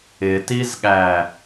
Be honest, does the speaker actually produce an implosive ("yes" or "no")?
yes